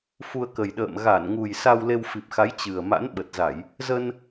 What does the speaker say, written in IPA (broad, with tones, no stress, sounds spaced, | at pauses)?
f u˧ ə̯ k ə˨˩ j ɗ ə̰ː˧˨ m ɣ a˧˩ n ŋ u˨˩ j s a˧ w l e˧ w f i˨˩ p̚ x a˨˦ j t͡ɕ ɨ˨˩ ə̯ m a̰˧˥ n ɓ ə˨˩ t̚ z a˧˩˨ j | z ə˧ n